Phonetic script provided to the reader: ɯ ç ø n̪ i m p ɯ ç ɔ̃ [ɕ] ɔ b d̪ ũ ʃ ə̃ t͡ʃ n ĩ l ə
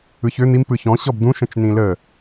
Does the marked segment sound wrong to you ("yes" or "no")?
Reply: no